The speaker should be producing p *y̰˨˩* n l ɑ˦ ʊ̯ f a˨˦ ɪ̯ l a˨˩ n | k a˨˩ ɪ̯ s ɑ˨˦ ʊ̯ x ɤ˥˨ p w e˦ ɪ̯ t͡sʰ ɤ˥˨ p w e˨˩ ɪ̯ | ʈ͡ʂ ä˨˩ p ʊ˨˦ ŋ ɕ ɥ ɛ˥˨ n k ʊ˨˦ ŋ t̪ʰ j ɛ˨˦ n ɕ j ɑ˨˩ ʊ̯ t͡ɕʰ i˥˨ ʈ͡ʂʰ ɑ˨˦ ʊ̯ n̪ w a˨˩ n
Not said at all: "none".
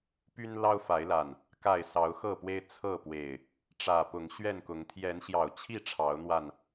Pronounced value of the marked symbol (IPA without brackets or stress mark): y˦